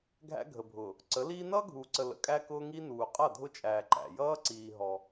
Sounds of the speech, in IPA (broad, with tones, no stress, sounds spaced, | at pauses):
ɡʱ æ̰˦ ɡʱ ə˨ bʱ ʊː˨ | ǀ ə˨˦ l iː˦ n ʌː˦ ɡʱ uː˨ ǀ ə˨ l ə̰˨ kʼ æ˦ k ʊː˦ ŋ i˦ n uː˨ qʼ ʌ˦˨ dʱ ʊ˦ t͡ʃʼ æː˨ ǃ æ̰˨ j ʌː˦ ǀ iː˨ ɦ ɔ˦